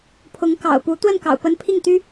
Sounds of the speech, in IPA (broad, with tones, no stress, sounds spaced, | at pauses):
pʰ ʊ˧˥ ŋ k ɑ̰˨˩ ʊ̯ p u˧˥ t̪ w ə˥˩ n k ɑ̰˨˩ ʊ̯ p ə˧˥ n pʰ i˥˩ ŋ t̪ y˥